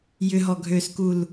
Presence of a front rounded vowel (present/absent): present